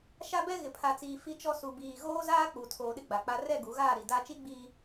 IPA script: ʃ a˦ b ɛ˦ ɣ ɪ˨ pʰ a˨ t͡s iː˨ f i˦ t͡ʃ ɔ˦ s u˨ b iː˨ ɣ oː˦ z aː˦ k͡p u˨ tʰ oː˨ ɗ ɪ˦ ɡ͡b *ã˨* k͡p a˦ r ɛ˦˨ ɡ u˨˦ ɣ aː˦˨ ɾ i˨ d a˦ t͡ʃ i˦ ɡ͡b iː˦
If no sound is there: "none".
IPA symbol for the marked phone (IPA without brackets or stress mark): a˨